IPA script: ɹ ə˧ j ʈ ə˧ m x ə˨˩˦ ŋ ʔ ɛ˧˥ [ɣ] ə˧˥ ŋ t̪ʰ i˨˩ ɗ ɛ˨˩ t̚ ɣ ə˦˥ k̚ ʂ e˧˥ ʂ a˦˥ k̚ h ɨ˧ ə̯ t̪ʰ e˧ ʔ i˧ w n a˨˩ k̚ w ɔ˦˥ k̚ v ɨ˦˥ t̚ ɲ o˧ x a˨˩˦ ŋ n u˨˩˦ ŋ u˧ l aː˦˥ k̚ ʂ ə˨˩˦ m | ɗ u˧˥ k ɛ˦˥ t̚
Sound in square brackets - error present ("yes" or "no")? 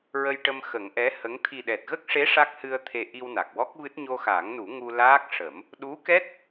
yes